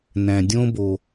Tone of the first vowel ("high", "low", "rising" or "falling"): low